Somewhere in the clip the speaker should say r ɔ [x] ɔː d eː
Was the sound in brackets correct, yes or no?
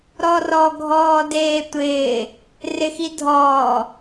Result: no